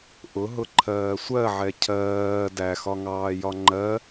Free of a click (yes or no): no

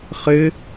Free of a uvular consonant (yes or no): no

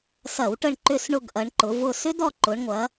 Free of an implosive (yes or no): yes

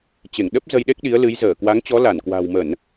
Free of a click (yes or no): yes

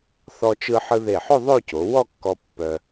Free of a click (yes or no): yes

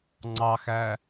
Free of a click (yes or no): no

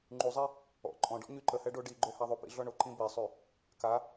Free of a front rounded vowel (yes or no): no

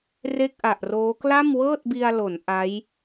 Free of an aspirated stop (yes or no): yes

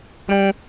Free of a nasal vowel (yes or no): no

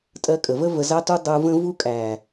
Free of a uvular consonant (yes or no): yes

